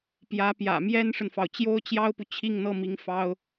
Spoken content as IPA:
p j ä˧˥ p j ä̰˨˩ m j ɛ˥ n ʂ ə˨ n f ɑ˩ ʊ̯ t͡ɕ j o˥ ʊ̯ t͡ɕ j ɑ˥ ʊ̯ p u˨ t͡ɕʰ i˥˧ ŋ n̪ ɤ˥˩ m i˧˥ ŋ f ɑ˥ ʊ̯

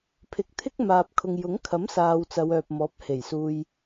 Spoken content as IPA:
pʰ ɪ˨ k̚ t̪ʰ ɪ˥ k̚ m aː˨ p̚ kʰ ʊ˨ ŋ j ʊ˨˥ ŋ kʰ ɐ˨˥ m s aː˨ w t͡s ɐ˨˧ w œː˨ p̚ m ɔː˨˥ p̚ h e˨˩ j s uː˧ j

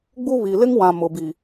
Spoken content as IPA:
ɡ͡b u˦ β i˨ l ɪ˦ ŋ w ã˨ m ʊ˨ b i˨

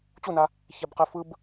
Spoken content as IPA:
t͡ɕ u n a | ç ɛ b q e f ɯ b

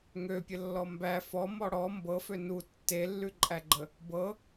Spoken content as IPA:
ŋ ø pʲ ə lː ɔ m b æ f ɔ m ɔ ɽ ɔ m b ɤ f ø n u tː e lː ʉ ǃʼ æ ɡ͡ǃ ə | b ɤ

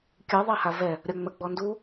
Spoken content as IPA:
kʲ ɯ ðˤ a h a v ɛ | ɾʲ ɒ ŋ͡m ə ɡ͡b ɔ n d u

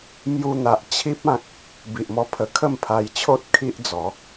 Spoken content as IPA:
m j u˧ n̪ a˨ ʔ t͡ɕʰ i˦ p̚ ã˦ k̚ | b i˨ ʔ m ɔ˧ pʰ ə˨˩ kʰ ə˥˧ m pʰ a˧ j t͡ɕʰ o˦ t̚ kʰ i˦ ʔ d͡z ɔ˨˦

